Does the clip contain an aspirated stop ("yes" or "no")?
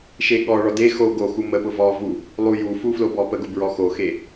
no